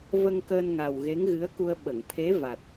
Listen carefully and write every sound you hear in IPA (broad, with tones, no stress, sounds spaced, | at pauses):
v ə˧ ŋ k əː˧ n ŋ a˨˩ w ɣ e˧˥ ŋ ɣ ɨ˧˥ ə̯ k u˧ ə̯ ɓ ə˨˩˨ ŋ t̪ʰ e˧˥ v a˨˩ t̚